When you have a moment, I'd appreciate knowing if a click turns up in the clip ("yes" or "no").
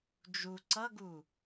yes